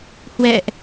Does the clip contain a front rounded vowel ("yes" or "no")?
no